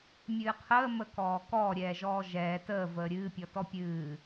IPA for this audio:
mʲ ɨː qʰ əː m ə k ɔː k ɔ ɾʲ ɛː ʒ ɔː ʒ ɛː t əː v əː ɾʲ ɨː pʲ ɔ t ɔ pʲ ɨː

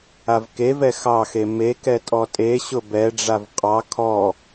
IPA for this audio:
a v k e v ɛ x ɑ x e m e k ɛ tʼ ɔ tʼ e ɕ ʊ b ɛ ɖ͡ʐ a v qʼ ɑ kʰ ɔ

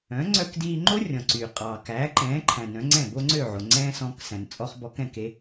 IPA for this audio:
œ̃˩˥ ŋ͡ǀ œ˧ k d iː˧ ŋ͡ǃ o˥ rʲ ɔ̃˩ ǀ yː˩ qʼ ɑː˩ k æː˩˥ ǃ ɛ̃ː˩˥ ǃʰ æ̃˩ n œ̃˩˥ ŋ͡ǀ ɛ̃˥˩ b o˥ ŋ͡ǀ ø˥˩ ʕ o˩ ŋ͡ǀ ɛ̃ː˥ s ɔ̃˧ k s æ̃˩ n t͡sʼ ɔ˧ χ b ɔ˧ k ɛ̃˥˩ k e˧

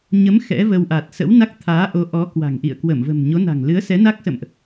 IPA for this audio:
ɲ ə˨˦ m x ɛ̰˧˥ v ə˧ w ʔ a˨˩ t̚ s ə̰˧˥ w n a˦˥ k̚ t̪ʰ aː˨˦ ʔ o˨˦ ʔ ɔ˨˦ k w a̤˨˩ ŋ ʔ ḭ˧˨ ə̯ k w ə˧˩ m v ə̤˨˩ m ɲ o˨˦ n a̤˨˩ ŋ l ɨ˨˦ ə̯ s ɛ˨˦ n a˦˥ k̚ s ə̰˧˨ m ʔ

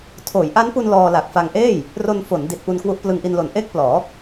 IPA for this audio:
tʰ oː˩˦ j ʔ a˦˥ n p u˧ n l ɔː˧ l a˨˩ k̚ f a˧ ŋ ʔ eː˥˩ j | r o˧ n f o˩˦ n d i˨˩ t̚ p u˧ n k w u˦˥ ʔ p l ɯ˧ ŋ ʔ i˧ n l o˨˩ n ʔ e˥˩ k̚ p l ɔː˩˦

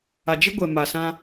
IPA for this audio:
a˨ d͡ʒ ɪ˦ ɡʷ ɛ˨ m a˨ s ã˦

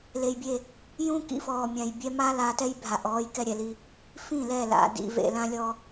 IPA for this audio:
l e˨ j bʲ e˦˨ | j ũ˦ k ḭ˦ f ɔː˨ mʲ ã˨ j bʲ ɛ˦ m a˦ l a˨ t ɛ˦ j bʱ a˨ ʔ ɔː˨˦ j k ɛ˦ ɾʲ ɛ˨ l i˦ | f ĩ˦˨ l ɛ˦˨ l a̰˨ d ḭ˨ v ḛ˨ l ã˦ lʲ ɔ˦

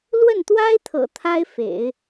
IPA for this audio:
l w ə˥˩ n t̪ w a˥ ɪ̯ t̪ʰ ɤ̰˨˩ t̪ʰ a˥ ɪ̯ f ḛ˨˩˦ ɪ̯

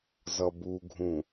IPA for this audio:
z ʌ b u ɡʱ ũ

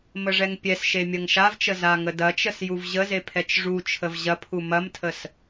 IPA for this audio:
m ə ʐ ɛ ŋ pʲ ɛ s ʃ e mʲ ɐ ŋ ʃ a v t͡ʃ ə z a ŋ ə d ɐ t͡ʃ ə s j u v ʑ ə z e pʰ ɛ t͡ʃ ʐ u t͡ʃʰ ə v ʑ ɐ pʰ u m ɐ m tʰ ə s

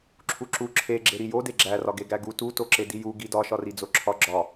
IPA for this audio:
ǁʰ u ǁ u ǁʰ e ɡ͡ǁ e ɾ i j o d e ɡ͡ǁ æ r ɒ ɡ e ɡ æ ɡ u t u t o ǁ e d i j u ɡ i d ɒ ʃ ɒ r i d͡z o ǁʰ ɒ ɡ͡ǁ ɒ

